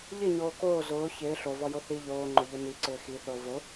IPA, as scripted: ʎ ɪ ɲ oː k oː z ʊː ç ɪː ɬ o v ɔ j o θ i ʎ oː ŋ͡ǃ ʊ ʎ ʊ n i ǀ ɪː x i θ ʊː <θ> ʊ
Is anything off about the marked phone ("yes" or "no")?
yes